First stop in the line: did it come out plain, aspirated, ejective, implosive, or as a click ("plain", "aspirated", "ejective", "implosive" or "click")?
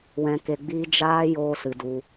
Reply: plain